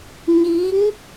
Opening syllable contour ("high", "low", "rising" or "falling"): rising